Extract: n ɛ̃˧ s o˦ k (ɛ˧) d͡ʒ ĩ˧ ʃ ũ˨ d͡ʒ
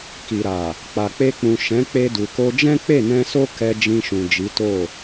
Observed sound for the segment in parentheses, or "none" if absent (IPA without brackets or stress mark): ɛ˧